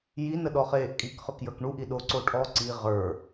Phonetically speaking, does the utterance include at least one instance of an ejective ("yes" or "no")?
yes